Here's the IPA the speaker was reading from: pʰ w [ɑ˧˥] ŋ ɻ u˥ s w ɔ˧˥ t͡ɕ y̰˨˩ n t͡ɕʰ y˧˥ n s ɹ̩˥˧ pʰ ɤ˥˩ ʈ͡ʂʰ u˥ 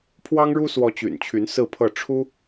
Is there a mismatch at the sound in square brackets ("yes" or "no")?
yes